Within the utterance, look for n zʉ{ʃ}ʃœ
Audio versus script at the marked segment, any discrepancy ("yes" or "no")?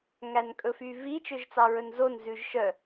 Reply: yes